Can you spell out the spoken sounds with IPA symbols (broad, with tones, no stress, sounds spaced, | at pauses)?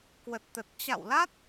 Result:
k w ə˨˩ t̚ t̪ ə˨˩ t̚ t͡ɕ a̰˧˨ w l a˦˥ t̚